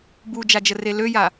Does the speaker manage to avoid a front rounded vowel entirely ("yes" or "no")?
no